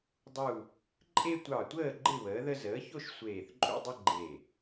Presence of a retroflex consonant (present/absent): absent